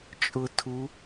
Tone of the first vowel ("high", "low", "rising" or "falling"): low